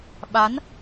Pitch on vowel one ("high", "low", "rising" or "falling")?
rising